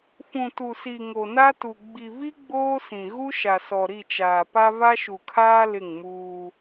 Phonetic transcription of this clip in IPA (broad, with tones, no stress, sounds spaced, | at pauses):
f ũ˨ t u˨ s i˨ ŋ o˨ n a˦ t u˨ ɡ͡b i˨ v i˦ ɡ͡b oː˦ s ĩ˨ ɣ u˦ ʃ a˨ s ɔ˨ ɾ i˦˨ t͡ʃ aː˨ p a˦ v a˦ ʃ u˨ kʰ aː˦ l ɪ˦˨ ŋ m uː˦